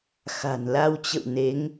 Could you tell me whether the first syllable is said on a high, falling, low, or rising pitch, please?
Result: low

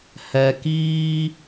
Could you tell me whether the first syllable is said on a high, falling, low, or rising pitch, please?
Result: low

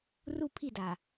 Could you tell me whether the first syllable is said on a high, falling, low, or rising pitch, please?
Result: falling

